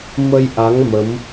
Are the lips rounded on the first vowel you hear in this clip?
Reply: no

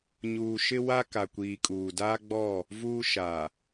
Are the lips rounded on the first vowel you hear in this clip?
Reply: yes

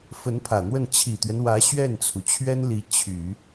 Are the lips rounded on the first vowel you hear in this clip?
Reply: no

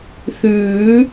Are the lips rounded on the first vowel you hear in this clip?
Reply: yes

